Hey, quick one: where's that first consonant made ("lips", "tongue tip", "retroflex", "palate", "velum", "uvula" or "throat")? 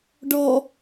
retroflex